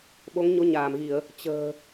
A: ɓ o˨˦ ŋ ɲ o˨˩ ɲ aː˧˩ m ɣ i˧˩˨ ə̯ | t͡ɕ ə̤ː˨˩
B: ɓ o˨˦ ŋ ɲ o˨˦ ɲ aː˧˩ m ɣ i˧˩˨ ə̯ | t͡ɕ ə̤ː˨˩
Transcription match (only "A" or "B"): B